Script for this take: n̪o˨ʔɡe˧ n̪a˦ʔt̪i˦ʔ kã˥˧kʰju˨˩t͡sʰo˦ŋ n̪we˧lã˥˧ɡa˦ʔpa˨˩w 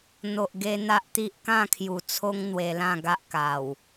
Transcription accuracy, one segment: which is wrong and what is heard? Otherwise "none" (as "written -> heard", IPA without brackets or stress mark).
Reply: p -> k